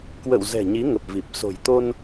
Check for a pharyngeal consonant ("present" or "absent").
absent